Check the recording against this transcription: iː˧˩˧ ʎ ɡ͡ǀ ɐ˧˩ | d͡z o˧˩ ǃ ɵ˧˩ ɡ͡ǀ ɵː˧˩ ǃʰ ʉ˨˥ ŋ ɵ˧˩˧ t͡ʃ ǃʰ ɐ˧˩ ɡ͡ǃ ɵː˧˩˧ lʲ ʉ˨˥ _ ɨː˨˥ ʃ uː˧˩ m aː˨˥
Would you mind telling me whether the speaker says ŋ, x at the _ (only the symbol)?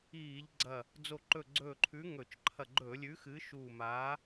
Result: x